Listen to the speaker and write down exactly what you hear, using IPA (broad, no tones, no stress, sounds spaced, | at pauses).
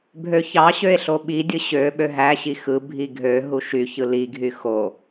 bʱ ø ç ɑ ɕ ø e̯ ɬ o ɓ i dʲ ɯ ɕ ø ɓ ø ɦ æ ɕ i x ɯ bʱ i ɡʱ ø ɦ u ʃ y ç ɯ l i ɡʱ y x o